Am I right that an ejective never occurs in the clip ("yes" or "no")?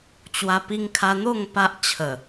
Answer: yes